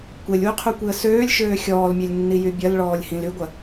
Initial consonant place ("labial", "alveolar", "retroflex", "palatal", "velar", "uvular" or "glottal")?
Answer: velar